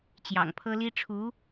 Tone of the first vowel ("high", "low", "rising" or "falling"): low